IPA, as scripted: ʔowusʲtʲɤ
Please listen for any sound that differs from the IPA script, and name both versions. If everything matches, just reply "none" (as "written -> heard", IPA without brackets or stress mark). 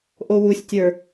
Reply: ɤ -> ə˞